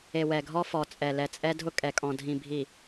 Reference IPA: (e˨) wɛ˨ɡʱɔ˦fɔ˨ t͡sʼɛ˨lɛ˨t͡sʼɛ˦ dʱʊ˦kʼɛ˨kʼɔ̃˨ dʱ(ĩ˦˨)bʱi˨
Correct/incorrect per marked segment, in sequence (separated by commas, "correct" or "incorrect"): correct, incorrect